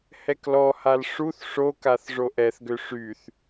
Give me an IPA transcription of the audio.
hɛklɔhal ʂuθ ʂokaθ ʐoʔɛθɡø ʂyθ

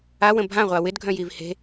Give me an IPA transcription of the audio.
awə̃ bʱãʁʷa wɪdɡʱœ̃jiv he̤

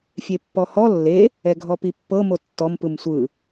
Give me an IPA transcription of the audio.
fʲepːɔhɔ lːe | ɛɡʱɔpipːɤ motːɔm pɯmsʷɯ

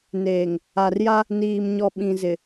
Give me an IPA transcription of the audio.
neː˨ŋ | a˨rja˦ | niː˨mɲɔ˨ɓĩ˨zɪ˨

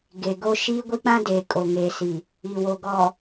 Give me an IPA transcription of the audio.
ɡe˨ɡo˦ ʃiː˦ɡʷi˦k͡pã˦deː˨ kʼo˨ŋeː˨si˨ | i˨wo˨ɡɔ˨

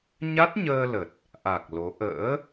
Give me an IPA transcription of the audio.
ɲa˦˥t̚ɲəː˧lə˨˩t̚ | ʔa˨˩k̚ lo˨˦ ʔə̰ː˧˥

